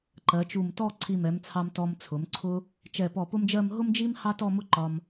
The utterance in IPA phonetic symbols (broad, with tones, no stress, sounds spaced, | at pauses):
ǃ ɜ˩˧ t͡ʃ u˧˩ m t ɔ˥˧ ǀʰ i˧˩ m ɛ˩˧ m t͡sʰ ɑ˧ m t ɔ˧ m t͡sʰ ʊ˩˧ m ǀʰ ʊ˥ | t͡ʃ ɛ˧˩ p ɔ˧˩ p ʊ˥ m d͡ʒ ɜ˥˧ m ɦ ʊ˥ m d͡ʒ i˥ m h ɑ˥ t ɔ˥˧ m ʊ˥ ǃ ɒ˧ m